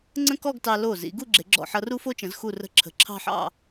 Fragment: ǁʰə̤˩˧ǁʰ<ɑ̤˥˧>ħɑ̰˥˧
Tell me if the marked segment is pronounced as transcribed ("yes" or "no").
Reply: yes